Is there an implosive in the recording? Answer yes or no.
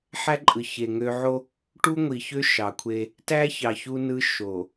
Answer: no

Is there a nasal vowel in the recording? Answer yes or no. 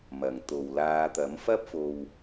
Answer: no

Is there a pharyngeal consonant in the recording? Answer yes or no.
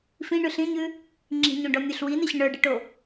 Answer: no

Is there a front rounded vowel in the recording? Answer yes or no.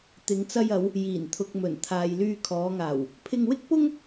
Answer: yes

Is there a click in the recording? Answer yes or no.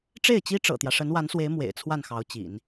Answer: no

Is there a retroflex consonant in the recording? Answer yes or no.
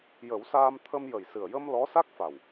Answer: no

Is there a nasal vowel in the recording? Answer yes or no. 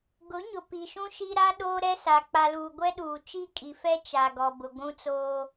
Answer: yes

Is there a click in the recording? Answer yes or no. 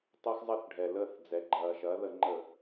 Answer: yes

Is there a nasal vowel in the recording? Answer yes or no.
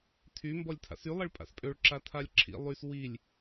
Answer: no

